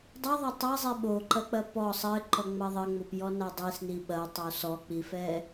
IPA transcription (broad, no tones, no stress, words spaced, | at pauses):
dˤɨðˤo tˤɐzˤe ɓoǃɐk͡pɐ pɔ sˤɘǃɔŋ͡mɐ ðˤɘŋ͡mopjɔna dˤisni ɓɐtˤo sɔk͡pifɛ